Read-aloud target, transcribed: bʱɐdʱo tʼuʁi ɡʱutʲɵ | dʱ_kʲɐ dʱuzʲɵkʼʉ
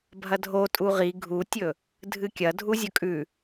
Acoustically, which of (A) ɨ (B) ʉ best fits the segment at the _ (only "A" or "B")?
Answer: A